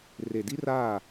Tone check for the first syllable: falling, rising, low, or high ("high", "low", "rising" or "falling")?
low